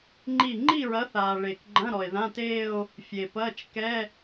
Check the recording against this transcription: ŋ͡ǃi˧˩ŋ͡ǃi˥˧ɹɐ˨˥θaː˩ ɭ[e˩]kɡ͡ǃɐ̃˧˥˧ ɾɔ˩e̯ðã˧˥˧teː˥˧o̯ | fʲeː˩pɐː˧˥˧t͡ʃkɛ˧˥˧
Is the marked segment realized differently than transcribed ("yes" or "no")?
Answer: no